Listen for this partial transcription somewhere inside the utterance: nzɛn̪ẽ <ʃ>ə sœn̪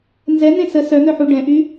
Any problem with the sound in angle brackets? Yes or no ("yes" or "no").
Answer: yes